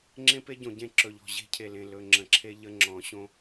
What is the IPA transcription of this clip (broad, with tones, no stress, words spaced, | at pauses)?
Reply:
ŋ͡ǁẽ˦pe˦ɟõ˨ ɟẽ˦ ǁɵ˨ʎɔ̤˨ ʑe̤˦cʰe˨lẽ˨ lɵ˨ ŋ͡ǁə̃˨ǁʰe˦ ʎə˦ŋ͡ǁɔ̃˨˦ ɕõ˦